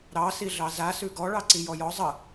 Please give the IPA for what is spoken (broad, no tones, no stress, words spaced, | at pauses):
ɾɑ siɮɑza sʉɡɔ ɭɑǀijɔjɔ zˤə